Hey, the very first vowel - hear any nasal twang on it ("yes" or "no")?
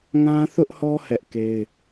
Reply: yes